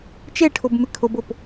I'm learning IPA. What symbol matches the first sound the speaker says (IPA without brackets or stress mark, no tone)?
t͡ʃ